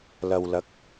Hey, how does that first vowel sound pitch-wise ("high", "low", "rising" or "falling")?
low